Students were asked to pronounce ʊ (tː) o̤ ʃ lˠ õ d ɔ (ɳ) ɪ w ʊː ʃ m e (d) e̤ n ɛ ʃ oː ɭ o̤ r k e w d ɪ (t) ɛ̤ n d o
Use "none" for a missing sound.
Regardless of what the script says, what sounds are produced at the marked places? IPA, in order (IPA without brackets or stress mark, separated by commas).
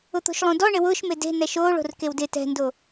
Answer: t̪, ɳ, d, t